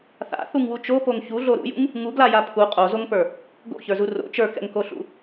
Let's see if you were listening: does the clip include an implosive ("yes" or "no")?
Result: no